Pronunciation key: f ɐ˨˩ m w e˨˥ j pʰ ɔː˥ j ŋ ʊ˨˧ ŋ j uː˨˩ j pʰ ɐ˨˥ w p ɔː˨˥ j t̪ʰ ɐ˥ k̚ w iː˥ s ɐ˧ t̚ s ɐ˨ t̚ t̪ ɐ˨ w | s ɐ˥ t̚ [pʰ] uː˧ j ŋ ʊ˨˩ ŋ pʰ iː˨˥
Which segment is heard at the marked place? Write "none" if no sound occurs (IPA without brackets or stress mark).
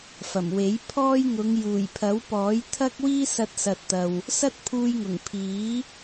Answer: pʰ